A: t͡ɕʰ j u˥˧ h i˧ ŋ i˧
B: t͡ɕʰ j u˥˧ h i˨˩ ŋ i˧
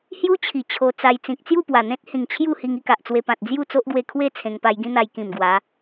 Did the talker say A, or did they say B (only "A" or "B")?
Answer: A